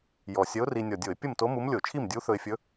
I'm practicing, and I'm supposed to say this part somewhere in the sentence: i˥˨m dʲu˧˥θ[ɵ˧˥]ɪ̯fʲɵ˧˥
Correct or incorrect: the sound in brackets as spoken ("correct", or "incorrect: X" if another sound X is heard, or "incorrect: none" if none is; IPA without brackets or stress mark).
incorrect: ɵ˧